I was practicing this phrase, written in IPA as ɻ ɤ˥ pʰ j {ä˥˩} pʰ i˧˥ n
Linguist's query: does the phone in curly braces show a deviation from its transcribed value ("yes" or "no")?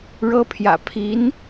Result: yes